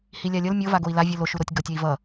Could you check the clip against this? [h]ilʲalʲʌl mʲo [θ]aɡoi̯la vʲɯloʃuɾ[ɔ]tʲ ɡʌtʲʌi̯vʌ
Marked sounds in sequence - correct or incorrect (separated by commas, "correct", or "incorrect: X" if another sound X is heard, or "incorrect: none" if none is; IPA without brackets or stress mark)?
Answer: correct, incorrect: v, incorrect: o